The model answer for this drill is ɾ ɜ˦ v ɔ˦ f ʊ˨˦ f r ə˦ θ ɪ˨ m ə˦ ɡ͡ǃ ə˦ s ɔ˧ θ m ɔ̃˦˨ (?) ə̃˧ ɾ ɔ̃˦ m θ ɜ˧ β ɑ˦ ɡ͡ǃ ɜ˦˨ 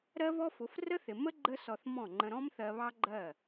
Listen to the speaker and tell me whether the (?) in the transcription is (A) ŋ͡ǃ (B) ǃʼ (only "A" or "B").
A